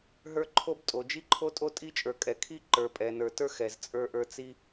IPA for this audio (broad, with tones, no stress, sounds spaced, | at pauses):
ɦ ə˞˦ ǃʰ o˦ b tʼ o˨ d͡ʒ i˦ ǃʰ o˦ tʼ o˦ tʼ i˦ t͡ʃʼ ə˞˨ kʼ ɛ˨ kʰ i˦ ǃ ə˞˨ pʼ ɛ˨ n ə˞˨ t ə˞˦ x ɛ˨ z t͡sʼ ə˞˦ ʔ ə˞˦ t͡s i˦